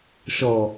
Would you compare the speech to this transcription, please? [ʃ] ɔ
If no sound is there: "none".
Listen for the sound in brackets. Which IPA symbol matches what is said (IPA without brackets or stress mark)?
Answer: ʃ